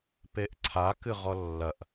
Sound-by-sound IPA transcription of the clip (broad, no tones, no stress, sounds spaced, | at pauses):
p e ʔ ǀʰ a k ɨ ʁ ɔ lː ɐ ʔ